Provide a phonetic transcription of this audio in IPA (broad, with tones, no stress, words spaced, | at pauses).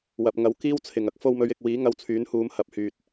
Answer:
wɐ˨p̚ ŋɐ˨˥w kiː˥wt͡sʰɪ˨˩ŋ ɐ˨˥k̚fo˧wmɵ˨˧ɥ ɪ˨k̚wiː˨˥ ŋɐ˧wt͡sʰyː˨˥nhuː˨˧m hɐ˨˥p̚hyː˨t̚